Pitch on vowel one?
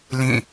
falling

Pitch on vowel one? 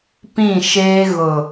falling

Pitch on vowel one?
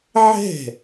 falling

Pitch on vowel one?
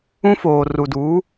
high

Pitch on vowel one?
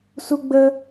high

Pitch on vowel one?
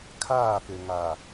falling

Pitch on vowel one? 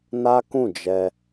high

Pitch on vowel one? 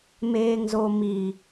low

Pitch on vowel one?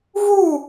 falling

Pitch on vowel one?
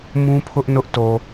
high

